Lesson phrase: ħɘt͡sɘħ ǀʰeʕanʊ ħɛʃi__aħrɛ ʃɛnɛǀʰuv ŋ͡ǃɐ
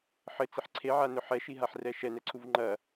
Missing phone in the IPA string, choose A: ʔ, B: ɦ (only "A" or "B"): B